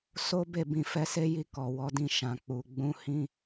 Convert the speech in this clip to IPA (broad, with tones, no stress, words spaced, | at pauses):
so˦ be˦˨bĩ˧ fɛ˧se˦ji˧ kɔ˨ wɔ˨˦dĩ˦˨ ʃã˨k͡pu˨ ɡ͡bũ˧ hĩ˦